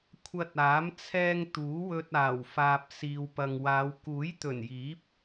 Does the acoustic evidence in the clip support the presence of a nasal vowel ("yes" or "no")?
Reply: no